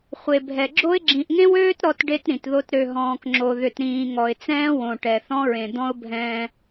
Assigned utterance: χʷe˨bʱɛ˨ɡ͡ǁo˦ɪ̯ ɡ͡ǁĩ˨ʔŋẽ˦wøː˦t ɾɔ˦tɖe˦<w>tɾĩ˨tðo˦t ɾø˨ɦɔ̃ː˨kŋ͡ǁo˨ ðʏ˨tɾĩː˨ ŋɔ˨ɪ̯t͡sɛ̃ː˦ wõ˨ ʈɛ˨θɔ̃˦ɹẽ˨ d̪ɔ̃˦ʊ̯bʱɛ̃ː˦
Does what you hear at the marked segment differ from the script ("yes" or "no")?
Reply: yes